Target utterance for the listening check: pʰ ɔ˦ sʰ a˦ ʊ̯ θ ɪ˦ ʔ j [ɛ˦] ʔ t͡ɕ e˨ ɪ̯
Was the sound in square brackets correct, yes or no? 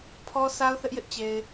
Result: no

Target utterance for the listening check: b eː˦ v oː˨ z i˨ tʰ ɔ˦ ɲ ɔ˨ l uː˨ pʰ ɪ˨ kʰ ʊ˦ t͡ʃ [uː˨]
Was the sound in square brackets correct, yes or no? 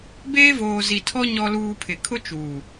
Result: yes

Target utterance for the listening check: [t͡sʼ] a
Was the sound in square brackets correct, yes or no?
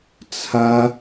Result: no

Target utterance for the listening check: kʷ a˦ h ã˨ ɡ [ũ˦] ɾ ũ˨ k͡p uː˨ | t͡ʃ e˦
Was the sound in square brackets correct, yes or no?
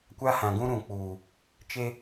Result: yes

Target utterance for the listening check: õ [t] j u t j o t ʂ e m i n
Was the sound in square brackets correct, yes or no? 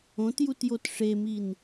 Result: yes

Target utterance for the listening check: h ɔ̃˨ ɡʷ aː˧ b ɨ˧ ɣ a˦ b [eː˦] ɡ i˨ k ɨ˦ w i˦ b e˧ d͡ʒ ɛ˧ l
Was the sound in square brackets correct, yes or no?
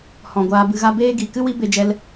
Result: yes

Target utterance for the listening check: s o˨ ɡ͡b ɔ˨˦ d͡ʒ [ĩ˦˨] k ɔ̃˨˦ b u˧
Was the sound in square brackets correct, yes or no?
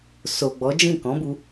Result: yes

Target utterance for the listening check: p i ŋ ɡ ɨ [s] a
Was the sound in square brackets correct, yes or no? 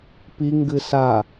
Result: yes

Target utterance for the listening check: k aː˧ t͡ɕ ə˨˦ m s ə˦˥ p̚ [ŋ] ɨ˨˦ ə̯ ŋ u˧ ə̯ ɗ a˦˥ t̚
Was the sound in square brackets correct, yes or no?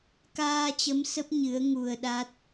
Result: no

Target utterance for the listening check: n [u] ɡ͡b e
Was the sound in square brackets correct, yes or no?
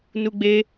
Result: yes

